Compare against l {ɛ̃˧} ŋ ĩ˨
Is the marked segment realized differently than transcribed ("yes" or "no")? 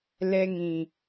yes